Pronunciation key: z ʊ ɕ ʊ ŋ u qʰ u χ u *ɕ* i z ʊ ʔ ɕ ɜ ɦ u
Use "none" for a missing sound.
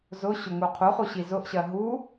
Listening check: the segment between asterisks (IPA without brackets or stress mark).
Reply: ɕ